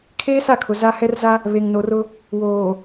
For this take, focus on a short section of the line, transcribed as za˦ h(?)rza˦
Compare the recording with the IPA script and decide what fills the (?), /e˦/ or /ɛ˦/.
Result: ɛ˦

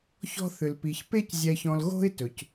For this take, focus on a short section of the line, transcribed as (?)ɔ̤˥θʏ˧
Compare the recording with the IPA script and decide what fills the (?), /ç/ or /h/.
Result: ç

